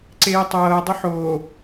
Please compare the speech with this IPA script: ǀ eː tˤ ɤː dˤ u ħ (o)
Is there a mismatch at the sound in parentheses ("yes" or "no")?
yes